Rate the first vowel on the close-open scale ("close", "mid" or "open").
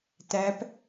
open